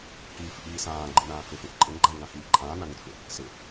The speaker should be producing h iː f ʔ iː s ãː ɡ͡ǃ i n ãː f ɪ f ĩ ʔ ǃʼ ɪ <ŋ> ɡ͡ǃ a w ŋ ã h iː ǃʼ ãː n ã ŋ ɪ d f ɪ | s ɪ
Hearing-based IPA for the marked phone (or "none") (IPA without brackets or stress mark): ŋ